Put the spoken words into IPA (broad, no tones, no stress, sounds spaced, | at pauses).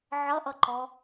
ʕ ʌ ʔ ʌ ǃ ɔ